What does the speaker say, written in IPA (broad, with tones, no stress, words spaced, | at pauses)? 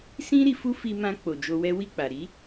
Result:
sĩ˦ ɾi˧fu˦ fi˧mã˧ k͡po˨d͡ʒo˧wɛ˦ wi˦˨k͡pa˨ ɾi˨˦